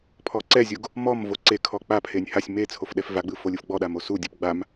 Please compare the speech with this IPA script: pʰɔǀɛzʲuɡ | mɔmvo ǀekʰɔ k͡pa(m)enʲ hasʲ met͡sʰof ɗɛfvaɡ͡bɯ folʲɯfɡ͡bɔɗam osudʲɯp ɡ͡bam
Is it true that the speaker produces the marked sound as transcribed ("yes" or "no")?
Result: no